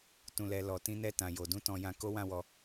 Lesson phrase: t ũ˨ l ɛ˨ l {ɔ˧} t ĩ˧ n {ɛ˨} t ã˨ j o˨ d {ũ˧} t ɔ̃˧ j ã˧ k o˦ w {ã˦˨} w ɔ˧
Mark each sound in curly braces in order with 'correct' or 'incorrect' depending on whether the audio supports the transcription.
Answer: incorrect: ɔ˨, incorrect: ɛ˧, correct, correct

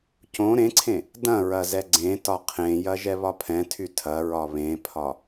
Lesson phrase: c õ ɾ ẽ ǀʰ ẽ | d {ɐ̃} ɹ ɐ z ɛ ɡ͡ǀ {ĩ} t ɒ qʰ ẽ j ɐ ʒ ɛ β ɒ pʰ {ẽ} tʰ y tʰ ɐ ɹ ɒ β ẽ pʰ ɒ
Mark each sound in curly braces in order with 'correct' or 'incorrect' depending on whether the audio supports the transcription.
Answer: correct, incorrect: ẽ, incorrect: ɛ̃

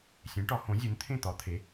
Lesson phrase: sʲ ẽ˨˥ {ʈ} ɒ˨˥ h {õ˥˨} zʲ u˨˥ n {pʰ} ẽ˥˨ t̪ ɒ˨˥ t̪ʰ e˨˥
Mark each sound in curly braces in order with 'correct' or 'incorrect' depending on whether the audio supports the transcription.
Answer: correct, incorrect: õ˨˥, incorrect: t̪ʰ

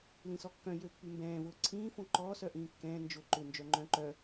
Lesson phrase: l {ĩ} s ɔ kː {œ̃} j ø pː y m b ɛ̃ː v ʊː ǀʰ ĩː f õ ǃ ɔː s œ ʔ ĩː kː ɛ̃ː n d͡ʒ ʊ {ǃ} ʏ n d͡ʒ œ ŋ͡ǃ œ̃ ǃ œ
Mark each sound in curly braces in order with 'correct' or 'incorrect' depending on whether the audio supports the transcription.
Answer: correct, correct, correct

